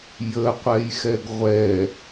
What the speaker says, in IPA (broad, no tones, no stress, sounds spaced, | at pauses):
j ə qʷ ɛ j x ɛ ɡ ʁʷ ɛ